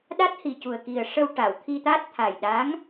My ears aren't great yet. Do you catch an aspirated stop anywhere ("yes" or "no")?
yes